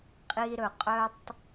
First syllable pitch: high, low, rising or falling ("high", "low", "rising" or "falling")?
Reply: low